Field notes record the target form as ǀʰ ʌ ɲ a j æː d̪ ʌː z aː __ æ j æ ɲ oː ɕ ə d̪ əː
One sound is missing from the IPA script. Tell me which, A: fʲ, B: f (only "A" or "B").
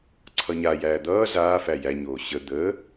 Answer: B